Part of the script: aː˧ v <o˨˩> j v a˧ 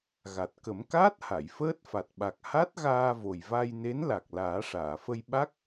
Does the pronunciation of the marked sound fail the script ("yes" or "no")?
no